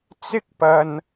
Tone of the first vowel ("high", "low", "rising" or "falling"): high